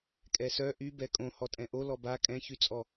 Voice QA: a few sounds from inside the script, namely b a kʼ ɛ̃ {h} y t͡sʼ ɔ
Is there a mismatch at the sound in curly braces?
yes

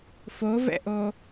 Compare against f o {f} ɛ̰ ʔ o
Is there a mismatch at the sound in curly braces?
yes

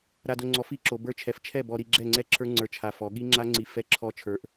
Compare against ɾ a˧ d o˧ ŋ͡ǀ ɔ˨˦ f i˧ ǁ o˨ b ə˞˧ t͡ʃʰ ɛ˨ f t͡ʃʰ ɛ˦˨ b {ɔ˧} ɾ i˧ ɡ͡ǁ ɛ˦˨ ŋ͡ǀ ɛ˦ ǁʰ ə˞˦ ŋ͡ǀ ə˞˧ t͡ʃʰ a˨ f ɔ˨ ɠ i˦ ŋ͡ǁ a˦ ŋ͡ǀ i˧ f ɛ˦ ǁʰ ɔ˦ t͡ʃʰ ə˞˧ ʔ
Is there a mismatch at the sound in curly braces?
no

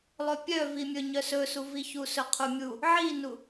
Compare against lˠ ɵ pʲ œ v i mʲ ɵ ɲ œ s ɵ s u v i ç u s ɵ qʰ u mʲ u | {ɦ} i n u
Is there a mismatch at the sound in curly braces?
yes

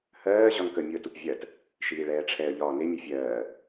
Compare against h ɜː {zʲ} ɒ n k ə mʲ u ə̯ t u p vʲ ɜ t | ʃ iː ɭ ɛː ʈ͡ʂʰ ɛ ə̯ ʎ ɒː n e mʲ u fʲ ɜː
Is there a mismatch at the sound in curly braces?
yes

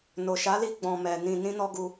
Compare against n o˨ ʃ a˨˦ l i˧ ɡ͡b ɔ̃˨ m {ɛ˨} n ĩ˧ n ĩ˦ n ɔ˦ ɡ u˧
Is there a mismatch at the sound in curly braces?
no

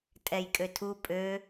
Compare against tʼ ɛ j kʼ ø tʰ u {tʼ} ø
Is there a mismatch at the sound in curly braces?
yes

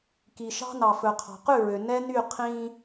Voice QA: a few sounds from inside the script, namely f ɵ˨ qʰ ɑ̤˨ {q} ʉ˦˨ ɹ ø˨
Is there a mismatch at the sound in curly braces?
no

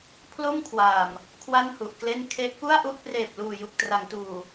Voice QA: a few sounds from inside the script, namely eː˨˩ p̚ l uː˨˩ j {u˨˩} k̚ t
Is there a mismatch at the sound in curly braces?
no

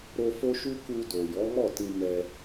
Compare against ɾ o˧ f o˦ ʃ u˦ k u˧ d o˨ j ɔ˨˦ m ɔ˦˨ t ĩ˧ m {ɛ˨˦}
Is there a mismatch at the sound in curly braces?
yes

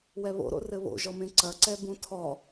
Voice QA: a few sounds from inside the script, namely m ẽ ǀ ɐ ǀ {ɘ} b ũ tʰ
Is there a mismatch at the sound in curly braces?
yes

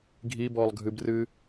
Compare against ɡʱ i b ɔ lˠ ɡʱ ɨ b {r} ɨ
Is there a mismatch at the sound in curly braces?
no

